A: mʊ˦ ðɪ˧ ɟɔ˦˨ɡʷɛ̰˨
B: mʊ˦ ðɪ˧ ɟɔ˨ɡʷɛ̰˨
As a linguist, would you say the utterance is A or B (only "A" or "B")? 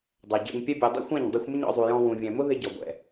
B